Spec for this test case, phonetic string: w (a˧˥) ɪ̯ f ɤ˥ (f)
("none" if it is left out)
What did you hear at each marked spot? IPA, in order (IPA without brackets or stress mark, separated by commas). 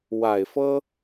a˨˩, none